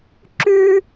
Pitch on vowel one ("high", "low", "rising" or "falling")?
high